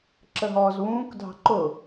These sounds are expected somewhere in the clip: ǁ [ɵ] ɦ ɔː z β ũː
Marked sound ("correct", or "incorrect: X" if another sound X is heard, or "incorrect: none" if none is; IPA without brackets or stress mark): incorrect: ə